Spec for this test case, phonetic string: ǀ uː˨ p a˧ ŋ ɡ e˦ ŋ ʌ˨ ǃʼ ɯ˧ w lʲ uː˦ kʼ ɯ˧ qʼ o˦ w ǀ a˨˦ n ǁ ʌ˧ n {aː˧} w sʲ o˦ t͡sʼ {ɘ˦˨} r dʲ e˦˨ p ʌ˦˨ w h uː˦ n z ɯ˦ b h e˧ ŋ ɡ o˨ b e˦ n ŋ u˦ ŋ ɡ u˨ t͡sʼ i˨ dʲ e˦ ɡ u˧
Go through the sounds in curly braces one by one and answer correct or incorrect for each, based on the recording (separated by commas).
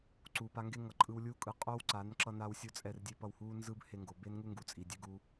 correct, incorrect